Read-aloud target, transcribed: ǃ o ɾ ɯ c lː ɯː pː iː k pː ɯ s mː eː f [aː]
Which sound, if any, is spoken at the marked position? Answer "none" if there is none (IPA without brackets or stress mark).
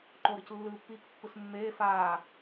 aː